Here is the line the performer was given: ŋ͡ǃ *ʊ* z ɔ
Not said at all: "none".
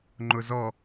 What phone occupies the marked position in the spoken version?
ʊ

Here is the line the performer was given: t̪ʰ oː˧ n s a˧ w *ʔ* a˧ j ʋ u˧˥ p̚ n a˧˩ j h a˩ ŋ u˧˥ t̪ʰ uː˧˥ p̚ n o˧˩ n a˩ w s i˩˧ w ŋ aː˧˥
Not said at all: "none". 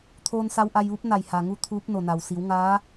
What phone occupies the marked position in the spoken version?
ʔ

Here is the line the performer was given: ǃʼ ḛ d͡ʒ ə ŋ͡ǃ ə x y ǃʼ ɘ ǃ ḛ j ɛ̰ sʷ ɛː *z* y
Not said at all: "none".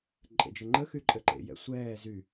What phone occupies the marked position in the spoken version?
z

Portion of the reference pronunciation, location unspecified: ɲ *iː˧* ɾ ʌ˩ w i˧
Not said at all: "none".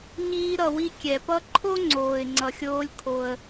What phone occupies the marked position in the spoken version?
iː˧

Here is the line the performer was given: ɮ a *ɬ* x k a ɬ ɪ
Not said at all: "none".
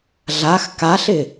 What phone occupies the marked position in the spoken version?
none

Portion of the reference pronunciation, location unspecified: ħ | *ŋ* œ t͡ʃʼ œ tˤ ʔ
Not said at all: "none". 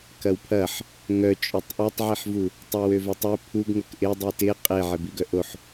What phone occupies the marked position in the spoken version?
ŋ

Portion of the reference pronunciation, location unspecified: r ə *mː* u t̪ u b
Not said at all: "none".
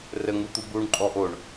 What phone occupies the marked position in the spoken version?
ŋ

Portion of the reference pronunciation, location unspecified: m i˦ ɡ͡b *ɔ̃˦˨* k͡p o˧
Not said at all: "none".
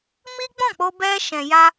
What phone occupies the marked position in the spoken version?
ɔ̃˦˨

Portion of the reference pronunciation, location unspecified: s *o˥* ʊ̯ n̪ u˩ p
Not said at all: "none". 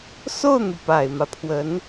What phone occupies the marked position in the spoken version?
o˥˩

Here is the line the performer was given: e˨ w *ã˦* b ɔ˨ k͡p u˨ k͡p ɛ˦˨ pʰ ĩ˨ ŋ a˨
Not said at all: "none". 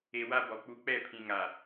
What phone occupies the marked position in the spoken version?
a˦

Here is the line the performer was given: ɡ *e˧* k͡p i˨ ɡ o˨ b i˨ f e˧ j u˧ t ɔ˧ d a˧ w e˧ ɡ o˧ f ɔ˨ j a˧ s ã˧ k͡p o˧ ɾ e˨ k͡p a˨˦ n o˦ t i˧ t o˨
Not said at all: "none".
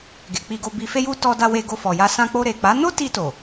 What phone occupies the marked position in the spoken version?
e˨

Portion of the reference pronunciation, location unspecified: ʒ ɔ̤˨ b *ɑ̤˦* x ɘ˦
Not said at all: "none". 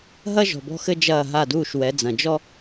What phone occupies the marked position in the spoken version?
ɔ̤˦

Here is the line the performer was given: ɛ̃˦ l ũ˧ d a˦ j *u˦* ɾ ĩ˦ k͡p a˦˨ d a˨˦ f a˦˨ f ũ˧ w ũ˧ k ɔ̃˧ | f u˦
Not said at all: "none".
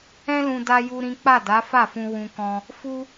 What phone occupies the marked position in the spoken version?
u˦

